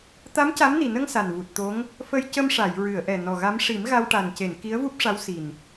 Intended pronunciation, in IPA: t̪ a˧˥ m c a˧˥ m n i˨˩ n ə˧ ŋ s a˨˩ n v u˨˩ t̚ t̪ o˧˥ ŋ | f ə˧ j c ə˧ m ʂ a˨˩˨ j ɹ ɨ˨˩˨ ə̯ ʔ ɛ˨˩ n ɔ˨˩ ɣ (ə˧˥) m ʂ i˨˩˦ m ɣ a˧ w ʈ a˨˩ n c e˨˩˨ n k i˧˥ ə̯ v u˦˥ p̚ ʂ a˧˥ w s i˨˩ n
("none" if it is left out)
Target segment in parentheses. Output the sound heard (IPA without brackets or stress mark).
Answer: a˧˥